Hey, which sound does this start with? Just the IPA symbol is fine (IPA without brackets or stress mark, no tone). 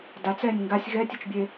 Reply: d